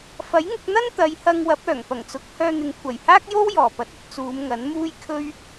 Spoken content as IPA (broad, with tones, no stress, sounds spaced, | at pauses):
f ɐ˨˥ j ŋ ʊ˧ k̚ n̪ ɐ˥ n t̪ ɐ˨˧ j h ɐ˧ ŋ w ɐ˨˥ p̚ œː˨˩ ŋ p ɐ˨˩ ŋ t͡s ʊ˨˥ k̚ h œː˧ n̪ ɪ˨ ŋ kʷʰ ɐ˨˩ j h aː˥ k̚ j o˥ w j ɔː˨˩ p ɐ˨˥ t̚ ɵ˧ t̚ t͡s uː˨˧ m ŋ ɐ˨˥ n m uː˥ j kʰ ɵ˥ ɥ